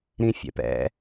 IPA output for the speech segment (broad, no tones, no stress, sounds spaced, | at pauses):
ɾ ĩ fʲ ɛ̰ p ɛ̰